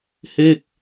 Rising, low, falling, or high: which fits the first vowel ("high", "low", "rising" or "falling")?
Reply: falling